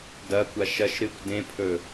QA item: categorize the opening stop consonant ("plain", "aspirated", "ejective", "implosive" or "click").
plain